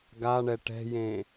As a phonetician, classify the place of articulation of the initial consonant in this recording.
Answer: velar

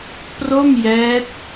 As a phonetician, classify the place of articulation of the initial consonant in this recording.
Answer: labial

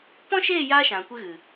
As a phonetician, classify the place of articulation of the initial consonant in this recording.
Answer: labial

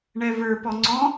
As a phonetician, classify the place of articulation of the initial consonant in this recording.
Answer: retroflex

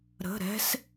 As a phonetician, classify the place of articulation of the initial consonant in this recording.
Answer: alveolar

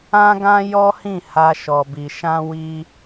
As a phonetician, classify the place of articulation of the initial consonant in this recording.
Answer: velar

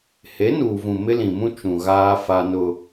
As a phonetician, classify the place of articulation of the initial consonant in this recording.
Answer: glottal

